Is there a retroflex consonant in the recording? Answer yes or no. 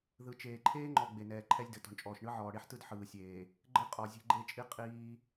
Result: yes